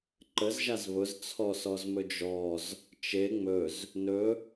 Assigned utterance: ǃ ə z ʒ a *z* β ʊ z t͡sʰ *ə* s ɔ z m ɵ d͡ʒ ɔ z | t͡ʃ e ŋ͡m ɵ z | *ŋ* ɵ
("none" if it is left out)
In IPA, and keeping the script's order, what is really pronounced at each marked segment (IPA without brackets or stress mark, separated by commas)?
z, ɔ, n